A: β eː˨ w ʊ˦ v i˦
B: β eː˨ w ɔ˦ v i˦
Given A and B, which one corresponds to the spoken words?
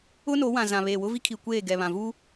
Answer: A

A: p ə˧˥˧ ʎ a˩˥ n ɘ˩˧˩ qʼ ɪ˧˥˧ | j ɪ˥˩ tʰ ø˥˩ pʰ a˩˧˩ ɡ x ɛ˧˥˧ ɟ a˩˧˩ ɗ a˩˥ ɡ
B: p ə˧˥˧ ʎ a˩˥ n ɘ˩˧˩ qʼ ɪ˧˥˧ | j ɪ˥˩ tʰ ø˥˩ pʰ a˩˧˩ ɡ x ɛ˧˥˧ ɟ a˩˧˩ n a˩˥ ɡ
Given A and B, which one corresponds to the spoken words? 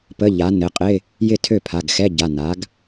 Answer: B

